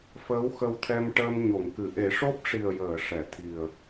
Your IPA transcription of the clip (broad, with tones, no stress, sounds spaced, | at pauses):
f əː˧˥ w x ə˧ w t̪ʰ ɛ˧ m ʈ əː˧ m ɲ o˨˩˨ ŋ k ɨ˨˩˨ ʔ e˨˩˦ ʂ o˦˥ p̚ ʂ i˨˩ ə̯ j əː˨˩˨ ʂ ɛ˨˩˨ t̪ʰ i˨˩ ə̯